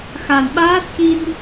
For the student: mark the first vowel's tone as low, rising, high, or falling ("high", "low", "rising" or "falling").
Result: low